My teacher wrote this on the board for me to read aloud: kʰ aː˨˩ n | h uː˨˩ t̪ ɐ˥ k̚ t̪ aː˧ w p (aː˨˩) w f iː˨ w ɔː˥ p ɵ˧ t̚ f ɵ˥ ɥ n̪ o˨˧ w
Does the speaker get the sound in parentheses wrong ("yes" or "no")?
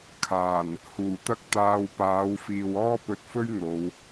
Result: yes